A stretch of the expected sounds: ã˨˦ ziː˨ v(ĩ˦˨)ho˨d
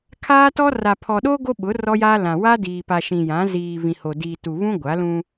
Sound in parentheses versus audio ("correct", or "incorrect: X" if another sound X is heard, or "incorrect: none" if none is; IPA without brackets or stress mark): incorrect: ĩ˨